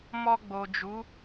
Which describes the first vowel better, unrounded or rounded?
rounded